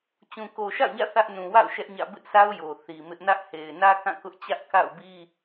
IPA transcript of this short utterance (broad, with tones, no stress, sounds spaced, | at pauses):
t͡ɕ ũ˨ k o˨ ʃ a̰˦˨ ʊ̯ ɲ ä̰˦˨ θ ä˦ ʔ n ũ˨ w a̰˦˨ ʊ̯ ʃ ɛ˦ ʔ ɲ ä̰˦˨ b ɪ˦ ʔ s a˦ ʊ̯ j o˨ θ i˨ m ɪ˦ ʔ n ä˦ ʔ h e˨ ɪ̯ n ä˦ k ã˦˨ k ʊ˦ ʔ t͡ɕ ä˦ ʔ k a̰˦˨ ʊ̯ b i˦